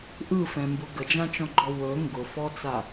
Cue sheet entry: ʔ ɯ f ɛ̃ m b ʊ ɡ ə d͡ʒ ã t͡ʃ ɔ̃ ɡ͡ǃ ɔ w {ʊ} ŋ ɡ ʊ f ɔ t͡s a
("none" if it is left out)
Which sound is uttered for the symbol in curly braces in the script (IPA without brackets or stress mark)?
ɵ